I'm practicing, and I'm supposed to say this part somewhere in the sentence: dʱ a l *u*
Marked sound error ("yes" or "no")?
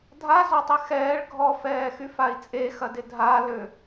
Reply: yes